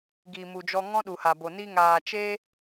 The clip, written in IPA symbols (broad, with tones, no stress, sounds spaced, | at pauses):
ɡ iː˨ m u˨ d͡ʒ ɔ˧ ŋ ɔ̃˦ ɗ u˨ h a˨ b o˨ n i˧ ŋ aː˨ t͡ʃ e˦